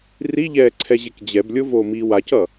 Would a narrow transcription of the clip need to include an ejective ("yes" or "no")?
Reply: no